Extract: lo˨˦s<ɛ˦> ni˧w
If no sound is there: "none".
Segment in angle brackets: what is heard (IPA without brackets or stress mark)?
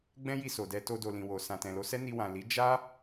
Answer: ɛ˦